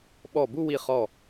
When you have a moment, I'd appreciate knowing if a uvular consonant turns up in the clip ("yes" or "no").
yes